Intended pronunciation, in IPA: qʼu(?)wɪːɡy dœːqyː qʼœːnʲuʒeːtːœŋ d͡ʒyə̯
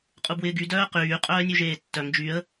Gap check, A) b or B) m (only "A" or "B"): A